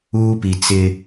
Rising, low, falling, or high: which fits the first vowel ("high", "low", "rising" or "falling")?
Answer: high